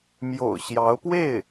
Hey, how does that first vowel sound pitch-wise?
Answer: low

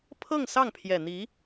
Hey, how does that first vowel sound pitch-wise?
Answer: falling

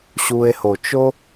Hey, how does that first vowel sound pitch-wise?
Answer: low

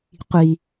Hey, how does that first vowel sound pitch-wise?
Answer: low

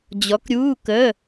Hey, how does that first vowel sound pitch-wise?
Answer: rising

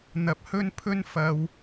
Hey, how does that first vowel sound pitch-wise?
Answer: low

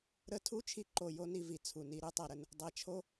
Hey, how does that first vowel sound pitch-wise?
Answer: high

